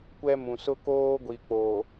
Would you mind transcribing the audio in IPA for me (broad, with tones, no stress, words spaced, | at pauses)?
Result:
kʷɛ˦mũ˨ sʊ˦koː˦ ɡʷi˨k͡poː˨